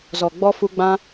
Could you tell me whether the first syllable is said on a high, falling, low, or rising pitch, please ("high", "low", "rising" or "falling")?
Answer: low